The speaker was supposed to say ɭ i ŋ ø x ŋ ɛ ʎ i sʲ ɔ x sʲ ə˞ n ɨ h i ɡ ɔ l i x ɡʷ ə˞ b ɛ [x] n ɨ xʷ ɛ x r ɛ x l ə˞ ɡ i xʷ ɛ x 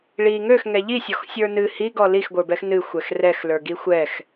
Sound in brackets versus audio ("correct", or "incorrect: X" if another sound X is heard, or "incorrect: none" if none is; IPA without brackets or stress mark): correct